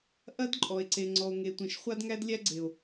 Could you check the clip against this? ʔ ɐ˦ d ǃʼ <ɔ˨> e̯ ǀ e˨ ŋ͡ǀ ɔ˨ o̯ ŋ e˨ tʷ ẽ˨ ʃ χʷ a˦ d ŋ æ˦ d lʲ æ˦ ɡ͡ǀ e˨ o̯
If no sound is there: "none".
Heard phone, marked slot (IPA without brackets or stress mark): ɔ˨